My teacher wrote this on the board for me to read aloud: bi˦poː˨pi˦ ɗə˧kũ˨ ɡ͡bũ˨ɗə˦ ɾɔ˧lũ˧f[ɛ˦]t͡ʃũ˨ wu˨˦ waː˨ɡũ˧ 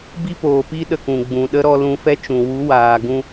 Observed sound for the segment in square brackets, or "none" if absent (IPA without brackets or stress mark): ɛ˦